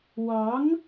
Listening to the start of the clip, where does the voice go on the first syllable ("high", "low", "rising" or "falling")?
rising